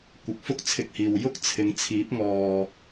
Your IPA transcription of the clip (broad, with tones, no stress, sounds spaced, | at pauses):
kʷ ɪ˨˥ k̚ f ʊ˥ k̚ t͡sʰ ɪ˧ k̚ h iː˨ w j ʊ˥ k̚ t͡sʰ ɪ˨˧ ŋ t͡sʰ iː˨˥ p̚ ŋ ɔː˨